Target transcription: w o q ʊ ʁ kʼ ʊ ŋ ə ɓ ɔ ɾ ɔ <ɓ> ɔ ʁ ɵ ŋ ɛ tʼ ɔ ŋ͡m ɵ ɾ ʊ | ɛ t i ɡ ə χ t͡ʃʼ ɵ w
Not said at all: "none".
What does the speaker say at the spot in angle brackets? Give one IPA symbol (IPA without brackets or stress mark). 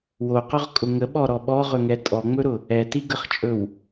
ɓ